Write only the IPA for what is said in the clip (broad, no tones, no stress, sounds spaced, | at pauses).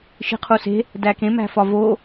ʃ i̤ qʰ u s e̤ | d æ k ẽ m æ̤ f ɒ v o